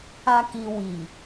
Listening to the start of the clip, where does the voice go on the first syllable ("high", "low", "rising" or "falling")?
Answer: low